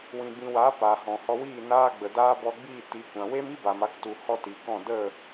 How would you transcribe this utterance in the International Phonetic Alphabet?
wĩ˨bĩ˨wa˨˦ pa˨hɔ̃˨ hɔ˧wiː˦˨ naː˧ɡ͡bə˨daː˧ bɔ˧ɡ͡biː˦˨ti˨˦kʷã˨ we˦mi˦ba˨m a˧ktu˨ hɔ˦ti˨˦kɔ̃˦˨ də˦˨

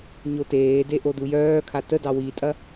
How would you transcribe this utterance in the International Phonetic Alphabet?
ɲoteːde ʔodujœːkʰa tədɑ witʼɐ

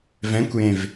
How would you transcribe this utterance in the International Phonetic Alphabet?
vɛ̃kʷjẽv

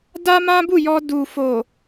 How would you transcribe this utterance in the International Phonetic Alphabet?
da˦mã˦bu˦˨ jɔ˧ du˨fo˨

